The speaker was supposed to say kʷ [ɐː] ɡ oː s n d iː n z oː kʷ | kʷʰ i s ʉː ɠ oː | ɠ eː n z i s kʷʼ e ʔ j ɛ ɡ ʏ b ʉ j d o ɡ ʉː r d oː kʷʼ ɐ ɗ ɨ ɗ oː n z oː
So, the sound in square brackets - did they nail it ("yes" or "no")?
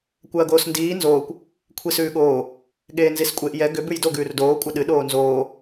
yes